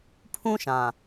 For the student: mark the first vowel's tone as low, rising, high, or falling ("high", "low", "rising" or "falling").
high